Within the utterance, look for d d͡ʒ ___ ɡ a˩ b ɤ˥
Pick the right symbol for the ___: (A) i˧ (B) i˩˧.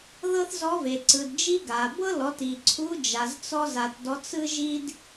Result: A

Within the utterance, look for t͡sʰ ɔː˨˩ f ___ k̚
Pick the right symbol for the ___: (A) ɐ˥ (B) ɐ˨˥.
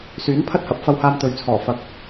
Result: B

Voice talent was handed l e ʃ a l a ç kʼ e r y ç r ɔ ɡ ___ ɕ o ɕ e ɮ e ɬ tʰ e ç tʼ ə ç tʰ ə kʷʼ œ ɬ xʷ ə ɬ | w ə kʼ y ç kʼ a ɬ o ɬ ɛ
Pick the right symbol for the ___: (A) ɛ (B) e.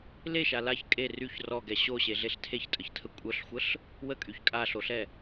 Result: A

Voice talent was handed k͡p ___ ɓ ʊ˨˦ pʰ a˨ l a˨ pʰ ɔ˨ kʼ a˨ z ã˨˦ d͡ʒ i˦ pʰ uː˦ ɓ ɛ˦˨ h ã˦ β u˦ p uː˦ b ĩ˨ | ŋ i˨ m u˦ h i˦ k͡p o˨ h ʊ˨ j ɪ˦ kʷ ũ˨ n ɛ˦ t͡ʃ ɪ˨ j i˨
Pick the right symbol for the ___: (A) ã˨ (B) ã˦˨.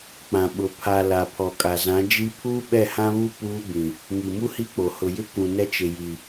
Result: A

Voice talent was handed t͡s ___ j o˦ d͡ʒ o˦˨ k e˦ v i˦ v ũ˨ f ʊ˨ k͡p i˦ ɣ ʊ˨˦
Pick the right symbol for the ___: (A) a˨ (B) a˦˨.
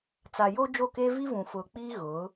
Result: A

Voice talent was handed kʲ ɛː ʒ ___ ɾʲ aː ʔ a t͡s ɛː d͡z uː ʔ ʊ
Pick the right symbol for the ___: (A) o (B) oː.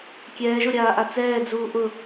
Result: A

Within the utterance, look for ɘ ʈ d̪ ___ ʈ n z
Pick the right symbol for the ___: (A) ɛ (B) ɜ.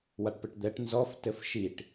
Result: A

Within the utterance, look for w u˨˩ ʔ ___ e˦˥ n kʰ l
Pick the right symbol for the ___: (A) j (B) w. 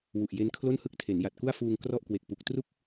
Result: A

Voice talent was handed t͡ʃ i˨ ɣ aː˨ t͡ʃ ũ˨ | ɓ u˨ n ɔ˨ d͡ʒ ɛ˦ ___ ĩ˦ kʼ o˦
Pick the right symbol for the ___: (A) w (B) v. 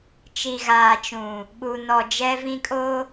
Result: B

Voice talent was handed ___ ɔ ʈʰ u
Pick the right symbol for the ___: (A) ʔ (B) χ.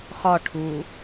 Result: B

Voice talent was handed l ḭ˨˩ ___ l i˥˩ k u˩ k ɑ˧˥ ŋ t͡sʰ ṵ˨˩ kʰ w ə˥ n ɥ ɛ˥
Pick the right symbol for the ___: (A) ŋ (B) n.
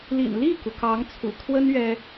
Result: B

